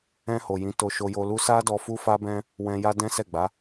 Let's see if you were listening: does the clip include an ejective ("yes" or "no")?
no